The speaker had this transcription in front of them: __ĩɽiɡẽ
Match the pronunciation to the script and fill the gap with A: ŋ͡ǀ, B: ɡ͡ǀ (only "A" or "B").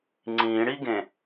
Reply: A